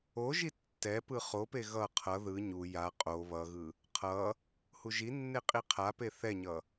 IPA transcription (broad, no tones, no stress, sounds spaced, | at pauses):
o ʒ i tː ɛ p ɯ χ o p e ɣ ʌ qʰ ʌ ð ɯ ɲ u j a qʼ o β ʌ ɣ ɯ | qʰ ʌ | h u ʒ i nː e qʼ i qʰ a p e θ ɛ ɲ ʌ